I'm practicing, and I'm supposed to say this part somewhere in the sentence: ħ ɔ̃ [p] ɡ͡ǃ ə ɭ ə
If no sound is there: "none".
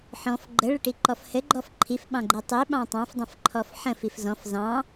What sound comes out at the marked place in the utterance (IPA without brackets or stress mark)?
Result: f